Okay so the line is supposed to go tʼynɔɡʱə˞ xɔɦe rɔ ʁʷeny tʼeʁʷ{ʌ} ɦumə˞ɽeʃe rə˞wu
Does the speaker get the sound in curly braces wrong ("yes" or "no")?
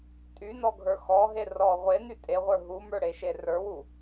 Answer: yes